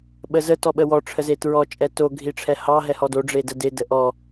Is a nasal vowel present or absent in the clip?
absent